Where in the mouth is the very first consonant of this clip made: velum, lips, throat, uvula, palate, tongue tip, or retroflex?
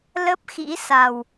tongue tip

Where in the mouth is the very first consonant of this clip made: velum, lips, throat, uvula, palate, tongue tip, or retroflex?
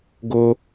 velum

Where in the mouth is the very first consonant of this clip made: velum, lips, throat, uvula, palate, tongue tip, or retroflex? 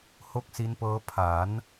throat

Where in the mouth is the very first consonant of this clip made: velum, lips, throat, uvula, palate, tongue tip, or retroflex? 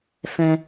lips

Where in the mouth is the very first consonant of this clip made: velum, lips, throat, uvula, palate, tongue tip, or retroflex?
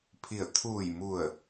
lips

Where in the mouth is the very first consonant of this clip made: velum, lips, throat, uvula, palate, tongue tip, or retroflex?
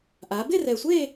throat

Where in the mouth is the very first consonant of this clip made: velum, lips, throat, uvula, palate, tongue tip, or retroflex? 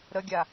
tongue tip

